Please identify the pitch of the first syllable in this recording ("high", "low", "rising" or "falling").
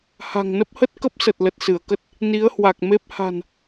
low